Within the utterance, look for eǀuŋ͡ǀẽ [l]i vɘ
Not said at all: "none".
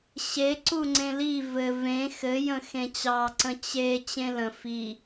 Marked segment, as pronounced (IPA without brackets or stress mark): l